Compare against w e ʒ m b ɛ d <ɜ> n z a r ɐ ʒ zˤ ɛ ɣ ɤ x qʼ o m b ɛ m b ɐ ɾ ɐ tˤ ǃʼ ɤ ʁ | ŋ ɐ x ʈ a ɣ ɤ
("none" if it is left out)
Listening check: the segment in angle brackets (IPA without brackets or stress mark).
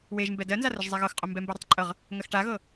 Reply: ɜ